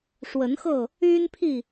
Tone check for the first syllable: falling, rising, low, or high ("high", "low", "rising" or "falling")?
rising